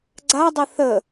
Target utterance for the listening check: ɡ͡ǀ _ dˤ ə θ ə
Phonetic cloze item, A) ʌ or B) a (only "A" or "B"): B